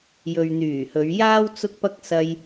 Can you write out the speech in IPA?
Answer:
j ɵ˨ ɥ n̪ yː˨˩ h ɵ˨˧ ɥ j aː˥ w t͡s ʊ˥ k̚ p ɐ˥ k̚ s ɐ˧ j

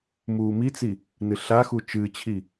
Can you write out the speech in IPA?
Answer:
m uː m i t͡s i | n ɨ ɬ a x u t͡ʃ ɨ t͡ɕʰ i

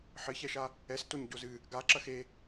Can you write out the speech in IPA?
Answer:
ħ ɘ ç ɛ ʃ a | ɛ s t o ɲ ɟ o z ɨ | ɡ a ǁ ɐ x e

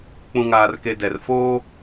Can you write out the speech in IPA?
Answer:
k͡p ũ˨ ŋ aː˨ r k e˨ d ɛ˨ r f oː˦

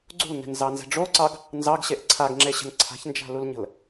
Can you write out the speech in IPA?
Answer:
ɡ͡ǀ ṳ l n ɛ̤ n z ɑ n z ɛ̤ ɖ͡ʐ o ǀ ɑ ɡ | n z ɑ ɡ ɕ e ʔ ǀʰ a ɡ ŋ͡ǁ e ɕ ə̤ n ǀʰ a̤ ç n d͡ʒ a̤ l u l ɲ ə̤ l

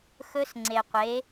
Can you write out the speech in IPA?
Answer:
x ɵ˦˥ s ŋ͡ǀ e˨ qʷ e˨˥

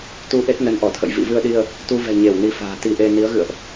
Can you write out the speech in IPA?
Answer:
t̪ u˧ ʔ e˦˥ t̚ n ə˨˦ n ʔ ɔ˧˩ t̪ʰ ə̰˧˨ j v ḭ˧˨ v ɨ˧ ə̯ ɗ i˧ ə̯ | t̪ u˧ v ɛ̤˨˩ ɲ e˧˩ w n i˨˦ f a̤ː˨˩ t̪ i˧ ʔ e˧ n i˨˦ ə̯ ɣ ɨ̰˧˨ ə̯ ʔ

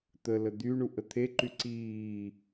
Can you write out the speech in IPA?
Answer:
t̪ ə l ə d̪ y ɳ u ʔ ə t̪ʰ e ǃ y ǀ iː

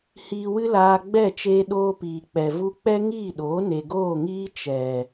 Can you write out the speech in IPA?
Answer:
h iː˧ w ɨ˦ l aː˧ ɡ͡b ɛ˦˨ t͡ʃ eː˧ ɗ oː˧ p iː˨ k͡p ɛ˨ v u˧ k͡p ɛ˦ ŋ iː˦˨ ɗ oː˨˦ n e˨ ɡ oː˦˨ ŋ iː˦ t͡ʃ ɛ˨

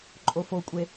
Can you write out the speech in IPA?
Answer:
ǃʼ o f o kʷʼ e

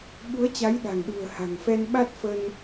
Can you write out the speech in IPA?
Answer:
ɓ u˨˦ ə̯ t͡ɕ a˨˦ j ɗ a̤˨˩ ŋ ɗ ṳ˨˩ ə̯ h a̤˨˩ ŋ f ɛ˧ n ɓ a˦˥ t̚ f ə˧ n

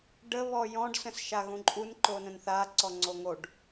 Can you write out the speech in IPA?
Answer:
ɖ ə β ɔ j ɔ̃ ɖ s ə̃ s ʃ a ɣ ũ ǃʼ u n ǃ o n ə̃ n θ a ǀ ɔ ŋ͡ǀ o ŋ o ɖ

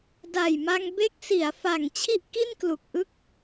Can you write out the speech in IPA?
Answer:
d a˨˩ j m a˧ ŋ b e˦˥ k̚ s i˩˦ a̯ f a˨˩ ŋ t͡ɕʰ i˥˩ ʔ k i˥˩ n k l u˨˩ k̚ ʔ ɯ˥˩ k̚

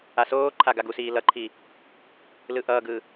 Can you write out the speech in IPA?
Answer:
a s oː ǃʰ a ɡ a ɡ u s iː l ʌ ǃʰ i | l ɯ ʔ ʌː ɡ ɯ

